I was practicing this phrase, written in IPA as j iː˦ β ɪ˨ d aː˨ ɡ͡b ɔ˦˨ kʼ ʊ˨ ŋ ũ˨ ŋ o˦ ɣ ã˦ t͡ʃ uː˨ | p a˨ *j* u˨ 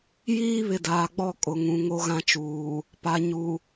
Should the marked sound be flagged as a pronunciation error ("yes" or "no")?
yes